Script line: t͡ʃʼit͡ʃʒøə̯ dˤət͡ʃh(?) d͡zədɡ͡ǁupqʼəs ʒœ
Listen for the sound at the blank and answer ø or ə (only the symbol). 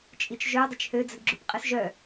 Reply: ø